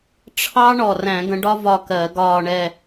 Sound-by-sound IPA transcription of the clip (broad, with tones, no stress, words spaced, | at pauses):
ʈ͡ʂʰɑ˥ ɳɔ˨˩ræ̃˧˩˧ɡə̃˨˦ɖɒ˥ vɒ˥˧kɜ˧˩˧ɡɒː˥˧ɳɛ˥˧